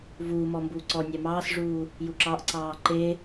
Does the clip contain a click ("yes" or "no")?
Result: yes